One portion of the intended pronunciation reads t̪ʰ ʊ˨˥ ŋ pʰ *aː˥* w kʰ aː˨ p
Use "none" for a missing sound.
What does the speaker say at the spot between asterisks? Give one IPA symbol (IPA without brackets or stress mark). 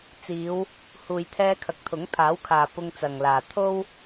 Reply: aː˨˥